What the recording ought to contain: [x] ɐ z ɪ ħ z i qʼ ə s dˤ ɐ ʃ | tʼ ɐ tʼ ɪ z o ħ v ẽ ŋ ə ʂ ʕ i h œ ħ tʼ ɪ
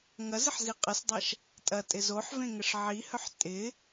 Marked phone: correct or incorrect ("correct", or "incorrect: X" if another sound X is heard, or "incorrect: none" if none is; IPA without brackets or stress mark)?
incorrect: ŋ